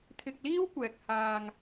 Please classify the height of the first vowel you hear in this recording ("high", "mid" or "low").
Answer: high